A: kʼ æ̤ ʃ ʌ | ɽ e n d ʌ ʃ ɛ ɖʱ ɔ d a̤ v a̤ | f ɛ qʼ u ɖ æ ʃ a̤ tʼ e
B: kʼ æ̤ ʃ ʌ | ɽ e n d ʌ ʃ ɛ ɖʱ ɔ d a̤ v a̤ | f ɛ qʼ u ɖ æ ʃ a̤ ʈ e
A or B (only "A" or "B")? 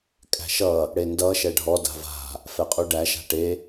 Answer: B